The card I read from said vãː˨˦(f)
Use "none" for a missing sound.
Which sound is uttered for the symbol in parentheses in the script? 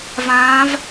v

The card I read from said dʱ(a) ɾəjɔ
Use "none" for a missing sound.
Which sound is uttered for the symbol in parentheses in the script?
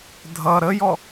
ʌ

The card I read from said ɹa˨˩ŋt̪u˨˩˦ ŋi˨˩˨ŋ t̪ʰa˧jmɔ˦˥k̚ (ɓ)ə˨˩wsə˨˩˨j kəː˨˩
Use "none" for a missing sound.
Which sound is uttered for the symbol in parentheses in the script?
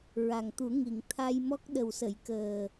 ɗ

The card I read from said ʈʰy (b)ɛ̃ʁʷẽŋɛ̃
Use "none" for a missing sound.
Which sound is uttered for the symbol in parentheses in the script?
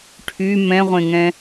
m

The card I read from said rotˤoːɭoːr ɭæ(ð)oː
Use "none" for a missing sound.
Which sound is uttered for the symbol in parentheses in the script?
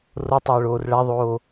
ðˤ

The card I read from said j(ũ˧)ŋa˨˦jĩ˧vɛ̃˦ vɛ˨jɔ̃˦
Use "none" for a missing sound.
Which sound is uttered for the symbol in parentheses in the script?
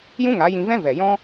ũ˦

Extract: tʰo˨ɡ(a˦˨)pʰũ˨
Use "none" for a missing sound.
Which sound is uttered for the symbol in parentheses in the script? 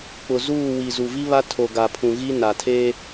a˨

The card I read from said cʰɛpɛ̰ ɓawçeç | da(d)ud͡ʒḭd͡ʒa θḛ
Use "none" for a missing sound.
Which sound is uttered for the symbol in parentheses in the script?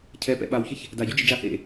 ɟ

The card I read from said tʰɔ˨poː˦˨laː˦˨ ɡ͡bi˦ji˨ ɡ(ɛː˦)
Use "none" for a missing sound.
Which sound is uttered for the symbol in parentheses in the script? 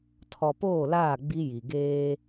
eː˦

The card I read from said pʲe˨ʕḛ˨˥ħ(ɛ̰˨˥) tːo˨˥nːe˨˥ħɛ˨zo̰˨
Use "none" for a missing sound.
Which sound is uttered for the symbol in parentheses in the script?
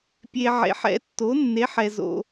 ɛ̰˨˥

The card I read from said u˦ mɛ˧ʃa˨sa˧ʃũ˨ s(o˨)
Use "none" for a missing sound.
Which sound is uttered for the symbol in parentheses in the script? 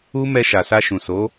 o˨˦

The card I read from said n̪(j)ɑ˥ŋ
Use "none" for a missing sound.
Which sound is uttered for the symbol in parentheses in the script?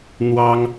w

